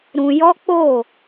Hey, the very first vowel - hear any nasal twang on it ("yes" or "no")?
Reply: yes